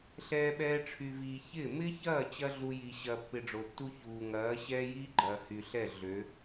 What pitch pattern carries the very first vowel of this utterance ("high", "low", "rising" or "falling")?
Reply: high